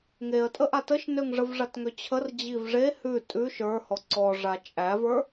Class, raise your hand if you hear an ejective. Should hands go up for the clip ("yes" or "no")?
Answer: yes